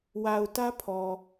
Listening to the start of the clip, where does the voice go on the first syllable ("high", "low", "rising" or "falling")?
low